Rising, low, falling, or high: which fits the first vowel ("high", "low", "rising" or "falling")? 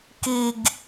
low